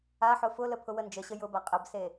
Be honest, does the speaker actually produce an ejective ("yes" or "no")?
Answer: yes